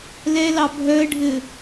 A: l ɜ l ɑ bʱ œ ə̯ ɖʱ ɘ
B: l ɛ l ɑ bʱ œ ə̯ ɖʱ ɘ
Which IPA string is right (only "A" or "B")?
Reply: B